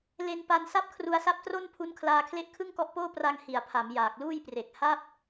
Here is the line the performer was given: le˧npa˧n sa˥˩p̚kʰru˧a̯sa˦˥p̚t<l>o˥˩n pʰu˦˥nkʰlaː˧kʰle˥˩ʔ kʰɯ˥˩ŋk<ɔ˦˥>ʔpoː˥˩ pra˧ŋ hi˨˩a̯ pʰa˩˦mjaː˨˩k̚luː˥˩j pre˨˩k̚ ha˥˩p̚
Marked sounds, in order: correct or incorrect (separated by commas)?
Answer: incorrect, correct